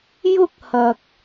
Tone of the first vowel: high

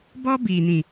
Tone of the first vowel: high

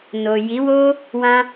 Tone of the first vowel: low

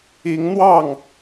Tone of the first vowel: rising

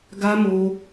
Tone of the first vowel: high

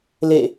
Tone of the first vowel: falling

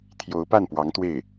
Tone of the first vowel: rising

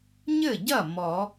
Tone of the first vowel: falling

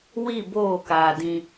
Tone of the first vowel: falling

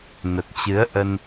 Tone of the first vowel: low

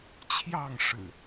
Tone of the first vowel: falling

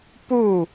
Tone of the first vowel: falling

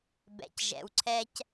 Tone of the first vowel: low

